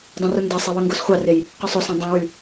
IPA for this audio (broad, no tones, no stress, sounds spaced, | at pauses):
dˤ ẽ r u n d ɑ sˤ e w ø ŋ ɡ o s χʷ ɑ r e j | q o sˤ o s ɑ̃ dˤ æ̃ w y